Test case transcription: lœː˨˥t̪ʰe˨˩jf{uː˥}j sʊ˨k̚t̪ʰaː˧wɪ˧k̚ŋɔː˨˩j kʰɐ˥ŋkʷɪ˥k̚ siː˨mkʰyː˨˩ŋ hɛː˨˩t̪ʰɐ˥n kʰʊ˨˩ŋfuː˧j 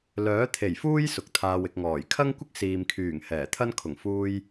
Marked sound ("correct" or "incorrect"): correct